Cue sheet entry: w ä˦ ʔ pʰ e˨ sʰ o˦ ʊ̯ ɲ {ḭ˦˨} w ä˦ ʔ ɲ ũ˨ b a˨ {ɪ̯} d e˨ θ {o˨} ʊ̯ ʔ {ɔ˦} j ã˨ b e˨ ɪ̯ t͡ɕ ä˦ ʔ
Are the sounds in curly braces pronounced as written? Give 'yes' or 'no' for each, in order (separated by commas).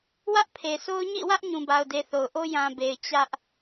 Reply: yes, no, yes, no